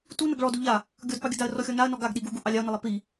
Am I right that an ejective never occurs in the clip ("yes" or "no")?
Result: yes